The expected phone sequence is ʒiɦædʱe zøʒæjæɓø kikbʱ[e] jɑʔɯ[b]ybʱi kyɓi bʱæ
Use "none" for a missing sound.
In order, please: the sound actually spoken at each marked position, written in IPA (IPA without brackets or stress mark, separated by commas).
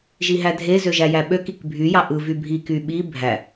y, v